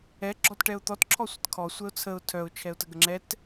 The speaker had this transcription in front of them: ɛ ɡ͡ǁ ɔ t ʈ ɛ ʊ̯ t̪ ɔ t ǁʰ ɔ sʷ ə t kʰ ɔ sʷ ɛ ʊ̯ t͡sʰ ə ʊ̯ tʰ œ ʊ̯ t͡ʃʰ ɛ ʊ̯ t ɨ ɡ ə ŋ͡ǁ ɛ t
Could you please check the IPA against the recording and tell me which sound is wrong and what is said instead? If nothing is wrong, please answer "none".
ɨ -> ə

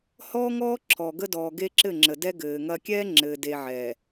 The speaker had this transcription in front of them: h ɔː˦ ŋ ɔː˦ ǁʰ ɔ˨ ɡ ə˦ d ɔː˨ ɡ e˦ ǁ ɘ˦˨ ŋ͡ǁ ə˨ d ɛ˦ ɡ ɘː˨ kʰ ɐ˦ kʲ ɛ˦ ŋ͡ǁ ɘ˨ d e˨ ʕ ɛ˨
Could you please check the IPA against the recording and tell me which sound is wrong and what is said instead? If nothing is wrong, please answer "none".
kʰ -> ŋ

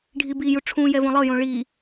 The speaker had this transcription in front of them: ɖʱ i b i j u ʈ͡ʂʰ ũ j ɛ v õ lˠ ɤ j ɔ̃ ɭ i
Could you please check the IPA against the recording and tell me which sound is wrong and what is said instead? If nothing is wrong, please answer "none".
ɔ̃ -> õ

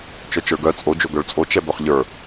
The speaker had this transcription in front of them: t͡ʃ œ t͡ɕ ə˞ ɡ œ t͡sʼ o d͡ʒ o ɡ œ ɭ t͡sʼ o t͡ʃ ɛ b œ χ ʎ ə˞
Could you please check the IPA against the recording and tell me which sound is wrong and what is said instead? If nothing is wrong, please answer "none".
t͡ɕ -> t͡ʃ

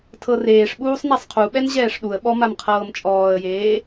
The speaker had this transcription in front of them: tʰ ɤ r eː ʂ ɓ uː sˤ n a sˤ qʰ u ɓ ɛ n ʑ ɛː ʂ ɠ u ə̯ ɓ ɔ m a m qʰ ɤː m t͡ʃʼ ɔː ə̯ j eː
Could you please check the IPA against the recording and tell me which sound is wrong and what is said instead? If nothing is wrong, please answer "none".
ɠ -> ɗ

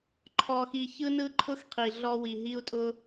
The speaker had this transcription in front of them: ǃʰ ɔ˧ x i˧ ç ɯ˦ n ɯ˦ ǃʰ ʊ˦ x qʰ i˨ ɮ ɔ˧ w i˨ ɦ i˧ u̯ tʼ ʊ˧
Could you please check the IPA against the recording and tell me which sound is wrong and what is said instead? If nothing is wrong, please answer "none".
none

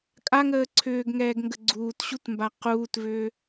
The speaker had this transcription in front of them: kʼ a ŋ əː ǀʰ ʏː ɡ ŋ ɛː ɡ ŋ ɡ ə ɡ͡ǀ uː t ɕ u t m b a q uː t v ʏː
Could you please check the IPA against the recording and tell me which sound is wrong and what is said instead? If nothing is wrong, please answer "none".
none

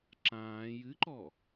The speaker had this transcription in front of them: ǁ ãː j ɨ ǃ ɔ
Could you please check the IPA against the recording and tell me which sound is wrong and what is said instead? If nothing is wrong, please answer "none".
none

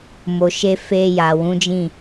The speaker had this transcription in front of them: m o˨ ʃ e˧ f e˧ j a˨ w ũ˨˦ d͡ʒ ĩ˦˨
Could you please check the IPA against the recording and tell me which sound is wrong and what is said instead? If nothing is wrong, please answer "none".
none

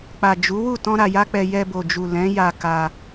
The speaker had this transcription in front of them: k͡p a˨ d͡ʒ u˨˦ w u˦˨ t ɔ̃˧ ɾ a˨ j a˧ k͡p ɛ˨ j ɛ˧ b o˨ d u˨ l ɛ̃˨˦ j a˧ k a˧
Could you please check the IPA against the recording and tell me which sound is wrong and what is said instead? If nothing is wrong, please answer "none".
d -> d͡ʒ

